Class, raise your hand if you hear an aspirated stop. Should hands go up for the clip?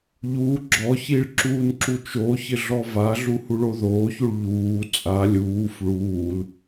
no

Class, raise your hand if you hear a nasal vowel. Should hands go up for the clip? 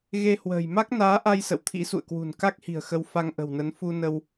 no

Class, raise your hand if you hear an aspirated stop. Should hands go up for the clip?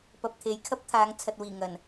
yes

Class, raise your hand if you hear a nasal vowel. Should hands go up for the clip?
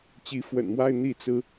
no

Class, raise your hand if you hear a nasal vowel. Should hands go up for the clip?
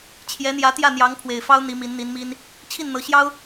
no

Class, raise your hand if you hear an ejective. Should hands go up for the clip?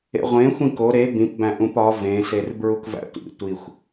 no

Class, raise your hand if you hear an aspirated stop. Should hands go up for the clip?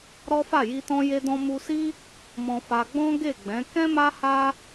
no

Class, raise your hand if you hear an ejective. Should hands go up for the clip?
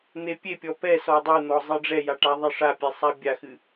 no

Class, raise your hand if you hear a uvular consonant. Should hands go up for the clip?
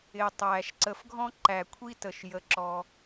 no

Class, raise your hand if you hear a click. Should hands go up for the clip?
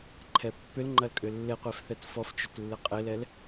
yes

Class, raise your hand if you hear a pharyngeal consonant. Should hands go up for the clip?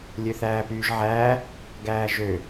yes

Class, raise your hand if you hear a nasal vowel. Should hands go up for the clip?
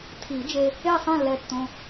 yes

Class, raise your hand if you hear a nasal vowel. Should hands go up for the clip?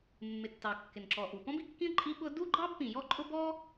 yes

